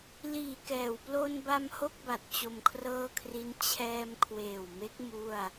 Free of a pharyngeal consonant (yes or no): yes